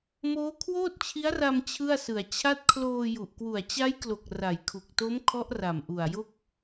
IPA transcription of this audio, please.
moː˦˥kʰwoː˥˩t̚t͡ɕʰi˦˥a̯ra˧m t͡ɕʰɯ˥˩a̯sɯ˨˩a̯ t͡ɕʰa˦˥t̚kʰloː˧ju˨˩ʔ kwu˨˩a̯t͡ɕa˦˥jklo˨˩k̚ ra˨˩jkʰu˨˩k̚to˦˥m kʰɔ˦˥ʔra˨˩mʔu˨˩a̯jo˥˩k̚

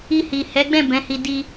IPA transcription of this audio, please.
i˧hi˨ hɛ˨˦ɡ͡bɛ̃˦˨ bɛ̃˨˦hi˧ di˧

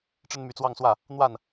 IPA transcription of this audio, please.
ʈ͡ʂə˥nmy˧˥t͡swɑ˥˧ŋswä˥˩ | n̪wa˥˩n

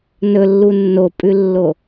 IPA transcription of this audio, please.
nɵlːu nːopʼʉlːo

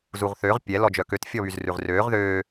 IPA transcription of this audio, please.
zuʁθøʁ pʲɛ lɔd͡ʒœkøt fʲɔβyzrʉʁrøːʁ ðøː

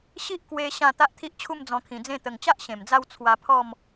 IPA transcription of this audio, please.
ɕi˦ʔkwe˧ ɕã˥˧ t̪a˦ʔt̪ʰi˦ʔt͡ɕʰu˥˧m d͡zɔ̃˧kʰĩ˨˩d͡zẽ˥˧ t̪ə˨˩ŋt͡ɕa˦ʔ ɕẽ˨˩md͡za˥˧w t͡sʰwa˧pʰɔ˥˧m

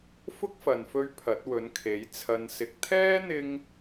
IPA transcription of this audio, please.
fʊ˥k̚fɐ˨nfɵ˧ɥ pʰɐ˨˥t̚wɵ˨˥nkʰe˨˥j t͡sʰɐ˧nsɪ˧k̚ t̪ʰɛː˥n̪ɪ˧ŋ

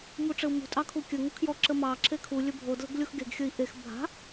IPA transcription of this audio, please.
muʈ͡ʂɘu̯mṳ tʼɑkʰukʲə ŋukʰjɔ ǁəmɑ ǁʰekʰu lʲɵbʱo dlə̤ɡlʲoxɡeɡ xʲəi̯ʔex bʱa̤

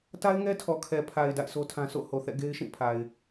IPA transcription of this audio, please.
ta˦ɪ̯ŋɛ˦tʰɔ˨kʰɛ˨ pʰa˨ɪ̯ da̰˦˨ɪ̯sʰo˦tʰã˦ so̰˦˨ ho˨θɛ̰˦˨ ɡe˦ɪ̯ʃĩ˦˨pʰa˨ɪ̯

